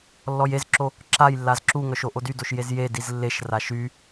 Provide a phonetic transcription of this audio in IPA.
lːɔjezǁo | ǁajlːaz ǁuŋœʃ oʔodydoʃ jezjediz lːeʃra ʃy

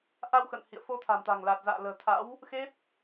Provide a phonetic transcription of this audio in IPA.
ʔa˧wxə̰˧˨n hḭ˧˨ə̯fo˧t̪ʰa̤˨˩mt̪a̤˨˩ŋ la˨˩t̚za̰ː˧˨ lə̤ː˨˩t̪ʰa̰˧˥w | xe˦˥t̚

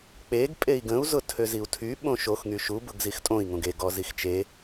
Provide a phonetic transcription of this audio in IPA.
k͡peɡ pʼei̯ɡə̃u̯ zʊtʰøziu̯tʰy ɓõʃox ŋyʃu bʊɡzixtʼõi̯ ŋõɡe ɡɔzixt͡ʃe

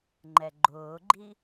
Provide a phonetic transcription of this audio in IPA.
ŋ͡ǃɛɡ͡ǃʊːɡ͡ǃi

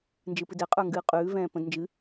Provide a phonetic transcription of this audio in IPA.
nd͡ʒɨpɨdɛ qʼə˞ŋɡɨːqʼʉː vɛ̃ːpə̃d nd͡ʒɨ

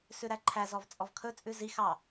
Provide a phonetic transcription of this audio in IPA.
sʉɾæǃʰæ zɔvt͡sʼɔvkʰɵ t͡sʼʉzi xɑ

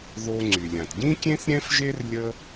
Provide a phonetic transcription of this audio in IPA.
ðo˧ŋ͡ǀy˩lʲã˩t ɟĩ˥kʲẽ˥θ ɾʲɛ̃˥fʒe˥r lʲə˥

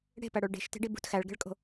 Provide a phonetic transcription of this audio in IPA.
ɽe̤pæɽoɭ ɖe̤ʃte̤ɖi bṳt xæɭɡe̤ɭkʼo̤

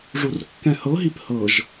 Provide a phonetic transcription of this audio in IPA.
ʐurkːɛ̃hɤɦip hɤʒ

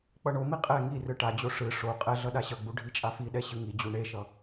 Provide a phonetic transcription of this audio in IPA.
k͡pʌɳomi qʼɛ ŋi rɯʈad͡ʑo ʂɯ ʂo qʼɛɮʌ ɗaɕʌɡ͡bu ɖʱit͡ʃʼafiɗɛ ɕɯŋid͡ʑu ɳeʃʌ

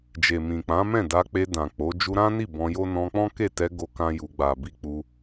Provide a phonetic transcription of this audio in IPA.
d͡ʒe˨mĩ˨k͡pã˨˦ mɛ̃˦˨da˧k͡pe˧ dã˨ k͡po˨˦ d͡ʒu˧ɾã˦ni˦˨ bɔ̃˧jo˦ nɔ̃˧k͡pɔ̃˦ke˦˨tɛ˧ ɡo˦kã˦ju˧ ɡ͡ba˨bi˧ k͡pu˧

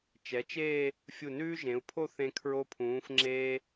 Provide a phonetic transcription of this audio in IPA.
t͡ʃɛ˩˧t͡ʃeː˥˧ | fʲu˧˩nʉː˥ʒẽ˩˧u̯pʰo˥˧ θẽ˧ kʰɹo˧pʰũː˩˧fŋ͡ǁeː˧

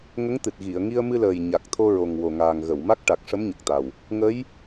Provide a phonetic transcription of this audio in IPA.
ŋə˧˥ŋt̪ɨ˨˩t̚ ɣi˨˩˨ə̯ŋi˧ə̯mɨ˧ləː˨˩j ɲa˨˩k̚ t̪ʰo˧ɹo˨˩ŋwo˨˩ŋaː˨˩ŋ ɣə˨˩˨wma˦˥k̚ʈa˨˩k̚ʂə˧˥m ɲə˨˩k̚t̪a˨˩w | ŋə˧˥j

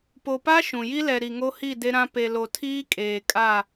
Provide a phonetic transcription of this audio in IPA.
po˨pa˦ ʃũ˨ ji˦lɛ˨ ɾi˨ŋo˦hi˦˨ de˦ɾã˦ pe˨lo˨ tʰiː˦kʼeː˨ kʼa˦˨

